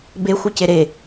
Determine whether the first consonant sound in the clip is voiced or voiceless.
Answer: voiced